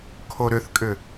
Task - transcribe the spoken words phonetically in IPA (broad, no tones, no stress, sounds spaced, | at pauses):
kʰ o ɾ ʏ θ kʼ ʏ